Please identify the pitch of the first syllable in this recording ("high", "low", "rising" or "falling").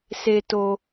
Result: low